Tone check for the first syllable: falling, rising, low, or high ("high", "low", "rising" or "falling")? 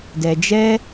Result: low